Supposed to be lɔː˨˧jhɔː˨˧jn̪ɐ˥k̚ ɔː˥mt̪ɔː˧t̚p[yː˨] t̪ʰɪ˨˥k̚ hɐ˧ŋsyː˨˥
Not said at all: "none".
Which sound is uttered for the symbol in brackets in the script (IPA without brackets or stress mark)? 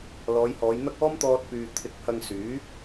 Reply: yː˨